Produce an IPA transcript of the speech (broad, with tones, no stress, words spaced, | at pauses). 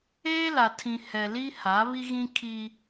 eː˦la˨ tʰĩ˨ hɛ˨ li˦ha˨˦ βi˦ɣĩ˦ kʰi˦